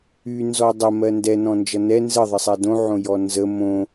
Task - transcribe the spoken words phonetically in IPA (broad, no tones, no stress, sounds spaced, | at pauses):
y n z ɔ dˤ ə m ɜ n d ɛ n ɔ̃ n d͡ʒ ʌ n ɛ n z ɘ ðˤ ə sˤ ɛ d õ ʕ õ j ɔ n z ə m õ